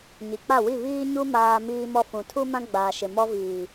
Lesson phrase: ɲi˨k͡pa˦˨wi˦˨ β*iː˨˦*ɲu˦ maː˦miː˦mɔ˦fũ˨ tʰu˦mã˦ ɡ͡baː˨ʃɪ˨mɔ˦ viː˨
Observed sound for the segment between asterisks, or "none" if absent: iː˦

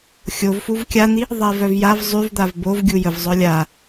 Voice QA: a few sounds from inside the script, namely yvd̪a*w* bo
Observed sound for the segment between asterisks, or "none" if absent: v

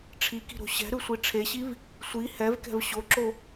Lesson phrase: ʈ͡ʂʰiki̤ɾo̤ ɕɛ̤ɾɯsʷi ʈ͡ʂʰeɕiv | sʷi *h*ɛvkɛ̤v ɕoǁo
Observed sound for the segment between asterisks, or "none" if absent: h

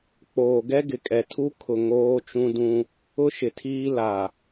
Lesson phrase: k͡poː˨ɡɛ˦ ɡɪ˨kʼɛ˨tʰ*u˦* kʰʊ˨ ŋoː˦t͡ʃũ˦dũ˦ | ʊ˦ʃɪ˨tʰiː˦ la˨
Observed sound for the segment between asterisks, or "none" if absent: u˦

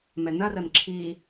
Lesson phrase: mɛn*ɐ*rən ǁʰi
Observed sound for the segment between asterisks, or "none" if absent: ɐ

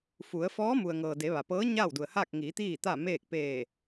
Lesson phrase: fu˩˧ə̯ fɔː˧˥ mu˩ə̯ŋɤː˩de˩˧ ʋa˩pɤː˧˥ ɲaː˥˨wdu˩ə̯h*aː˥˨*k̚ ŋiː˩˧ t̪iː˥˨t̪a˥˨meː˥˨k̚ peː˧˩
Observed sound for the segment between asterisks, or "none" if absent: aː˥˨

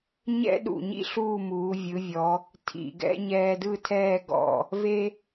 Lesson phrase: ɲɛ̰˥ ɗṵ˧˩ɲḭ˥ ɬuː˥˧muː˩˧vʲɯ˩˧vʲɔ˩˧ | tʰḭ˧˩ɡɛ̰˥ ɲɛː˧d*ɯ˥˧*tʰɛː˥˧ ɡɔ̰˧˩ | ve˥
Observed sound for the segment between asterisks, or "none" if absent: ɯ˥˧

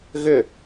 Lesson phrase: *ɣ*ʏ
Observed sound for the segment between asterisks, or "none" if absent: ɣ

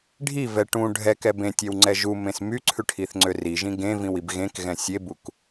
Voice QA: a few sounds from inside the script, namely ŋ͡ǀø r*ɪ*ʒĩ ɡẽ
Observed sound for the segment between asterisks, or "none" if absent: i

